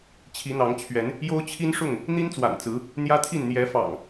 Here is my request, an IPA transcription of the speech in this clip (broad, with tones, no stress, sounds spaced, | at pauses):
t͡ɕʰ i˨˦ n̪ ɑ˨˦ ŋ t͡ɕʰ ɥ ɛ˨˦ n | j o˦ ʊ̯ t͡ɕʰ i˦ n ʂ ʊ˥˨ ŋ | n̪ i˦ n t͡s w a̰˨˩ n t͡s ɹ̩˨˦ | n̪ j ä˦ t̪ʰ i˥˨ n n̪ j ɛ˨˦ f ɑ̰˨˩ ŋ